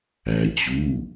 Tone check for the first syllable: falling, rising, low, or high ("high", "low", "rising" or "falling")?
low